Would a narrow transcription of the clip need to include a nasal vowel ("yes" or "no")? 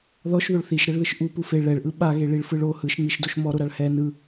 no